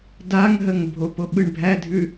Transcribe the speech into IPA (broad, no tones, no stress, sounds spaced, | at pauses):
d a ŋ ɦ ə ŋ bʱ o p o ɓ ɯ ɳ bʱ æ dʱ ʉ